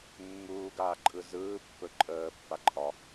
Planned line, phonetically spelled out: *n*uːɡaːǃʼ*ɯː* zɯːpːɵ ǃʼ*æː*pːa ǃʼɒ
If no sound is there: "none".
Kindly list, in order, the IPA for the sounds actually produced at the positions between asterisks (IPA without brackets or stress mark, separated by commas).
mː, ɯ, əː